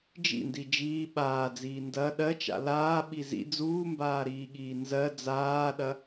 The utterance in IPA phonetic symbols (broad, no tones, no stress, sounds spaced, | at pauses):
d͡ʒ ḭ n d i d͡ʒ iː ɓ aː d͡z iː n d ɐ ɗ ɜ t͡ʃ a̰ l aː ɓ i z ḭ d͡z uː m b aː ɾ iː ɠ iː n z ɜ d͡z aː ɗ ɐ